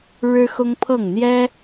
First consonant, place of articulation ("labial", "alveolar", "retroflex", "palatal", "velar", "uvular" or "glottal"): retroflex